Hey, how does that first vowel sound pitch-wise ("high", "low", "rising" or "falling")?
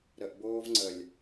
low